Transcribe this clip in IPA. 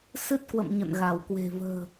s ɨ˦˥ t̚ k w ə̰˧˨ m ɲ ə̰˧˨ n ɣ a˧˩ w k w e̤˨˩ v ə̤ː˨˩

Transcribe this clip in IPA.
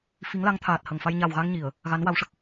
f i˧˥ ŋ l a˧˥ ŋ t̪ʰ aː˨˩ t̚ h ə˨˩ ŋ f a˧ j ɲ a˨˩ w ɣ a˧ ŋ ɲ i˨˩˨ ə̯ | ɣ a˧˥ n w a˧˥ w ʂ ə˨˩ k̚

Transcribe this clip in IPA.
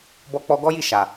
b ɔ˧ k͡p ɔ˧ ɡ ɔ˦ j i˦˨ ʃ a˨

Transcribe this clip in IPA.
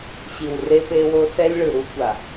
ɕ i˨ w r e˦ p e˦ w o˦ s ɛ˦ lʲ ɭ ɯ˨ ɾ u˦ kʷ a˨

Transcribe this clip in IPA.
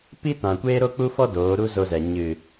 p i˦ t ã˨ kʷ eː˦ ɾ o˦ k͡p u˦ f ɔ˦ d oː˨˦ ɾ u˦ z o˧ z ɛ˨ ɲ ɨ˨

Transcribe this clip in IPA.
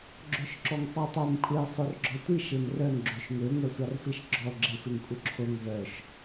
ɡ͡ǁ ø ʃ ǁ ɔ ŋ sˤ æ tˤ ø m kʷʼ e sˤ o r ɡ͡ǁ ɔ tʷ i ʃ e m r œ ŋ ɡ͡ǁ ø ʃ ŋ ø ŋʷ æ sʷ ɑ r sʷ i ʃ ɡ͡ǁ ɔ ɡ͡ǁ e sʷ e ŋ kʷʼ œ ǁʰ o ŋ v œ ʃ

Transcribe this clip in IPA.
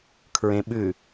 kʰ ɹ ẽ ɓ ʉ

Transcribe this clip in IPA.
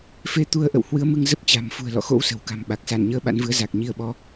f e˧ t̪ u˧ ə̯ ʔ ə̰˧˨ w h w ɨ˨˦ ə̯ m ɨ˧ ŋ z ə˦˥ p̚ t͡ɕ a̤˨˩ m f ṳ˨˩ ə̯ l ɔ̰˧˨ x o̰˧˥ w s ə̤˨˩ w k a̤˨˩ m ɓ a˨˩ k̚ s a˧˩ n ɲ əː˨˦ ɓ a̰˧˥ n v ɨ˨˦ ə̯ z a˨˩ k̚ ɲ i˧ ə̯ ɓ ɔ˨˦

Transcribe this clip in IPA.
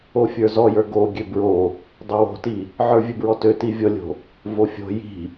o fʲ ə˞ z ɔ j ə˞ ɡ o ɡʲ ø b ɹ o | dˤ o w o̤ t i | ʕ ə˞ vʲ ɨ b ɹ ɔ t ø t i vʲ ɔ lʲ o̤ | v o fʲ o̤ j i̤

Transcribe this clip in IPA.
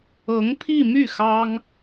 ɤ˧˥ ŋ pʰ i˥˧ m y˥˩ x ɑ˥ ŋ

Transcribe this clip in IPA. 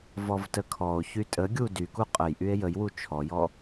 v ɔ v t ə kʰ ɔ o̯ ç y tʼ ə ɡʲ u d y k u qʼ ə j ʔ y e̯ j ə j w u t͡ʃʰ ɔ j ɔ

